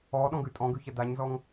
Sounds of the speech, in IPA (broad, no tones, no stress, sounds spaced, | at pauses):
ɔ ɗ ɔ̃ ɡ ʉ tʼ ɔ̃ ɡ ʉ ç ɐ d a ɲ z ɔ ŋ